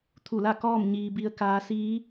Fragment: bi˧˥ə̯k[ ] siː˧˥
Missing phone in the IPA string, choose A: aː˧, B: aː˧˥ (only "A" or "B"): B